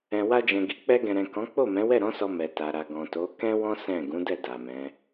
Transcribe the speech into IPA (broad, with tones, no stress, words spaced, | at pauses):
ɛ̃˨wa˧d͡ʒɛ̃˨ɡi˨ k͡pɛ˧ɡɛ̃˨ɾɛ̃˨ kɔ̃˨˦ k͡po˦˨mɛ̃˨˦wɛ˦˨ ɾɔ̃˨˦sɔ˧ mɛ˨ta˨ɾa˨ ɡɔ̃˨to˨˦ kɛ̃˦wɔ̃˦ sɛ̃˦˨ ɡũ˨˦dɛ˦˨ da˨mɛ̃˨˦